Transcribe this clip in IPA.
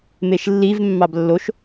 m e ʃ lː i v mː ɑ b lː o ʃ

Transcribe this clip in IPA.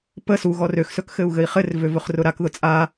p ə s u ɣ ɔ r ø x s ɵ k x ɘ u̯ ɣ ɘ i̯ χ ɘ r v ø v ɵ χ r ʊ ɾ a k ð ʊ t͡sʼ a

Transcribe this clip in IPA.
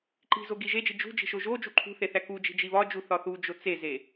ǃ i̤ z o ɡ i ʒ e d͡ʒ i d͡ʒ ṳ d͡ʒ i̤ ʃ o ʒ o d͡ʒ u ǃʰ ṳ θ e θ æ k u d͡ʒ i̤ d͡ʒ i β ɒ d͡ʒ u θ ɒ θ u d͡ʒ o t͡s e z e

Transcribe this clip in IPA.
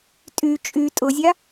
tʼ y t͡ʃʼ y tʼ ʊ zʲ a

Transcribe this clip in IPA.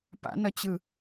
p a̰ n ʌ t͡ɕ ɯ

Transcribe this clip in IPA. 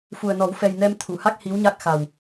f u˨˩ ə̯ n ɔ˨˩˦ w f ɛ˨˩ j n ɛ˧ m t̪ʰ u˨˩˨ h a˦˥ k̚ h i˧˥ w ɲ a˦˥ k̚ x a˨˩ w

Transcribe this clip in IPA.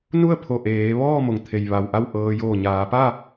n u˥˨ ə̯ pʰ o˧˩ ʔ eː˩˧ ʋ ɔː˥˨ m o˩ ŋ t̪ʰ e˩ j ʋ a˩ w ʔ a˥˨ w ʔ ɤː˧ j oː˧˩ ɲ aː˩˧ p a˥˨

